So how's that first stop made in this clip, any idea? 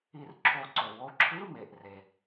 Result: click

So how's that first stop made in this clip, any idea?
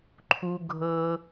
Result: click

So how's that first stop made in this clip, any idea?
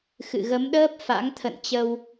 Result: implosive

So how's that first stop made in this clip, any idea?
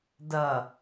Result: plain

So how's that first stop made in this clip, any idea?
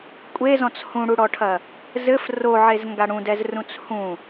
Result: ejective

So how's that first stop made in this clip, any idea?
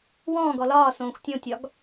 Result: plain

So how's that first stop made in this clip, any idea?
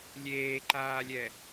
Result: click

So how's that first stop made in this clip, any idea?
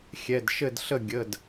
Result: plain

